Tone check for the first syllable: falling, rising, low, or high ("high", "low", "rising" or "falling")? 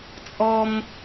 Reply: high